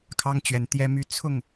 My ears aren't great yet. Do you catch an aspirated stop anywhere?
yes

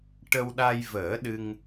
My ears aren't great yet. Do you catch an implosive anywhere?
yes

